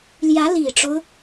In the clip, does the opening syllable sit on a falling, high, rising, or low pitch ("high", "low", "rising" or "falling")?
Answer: rising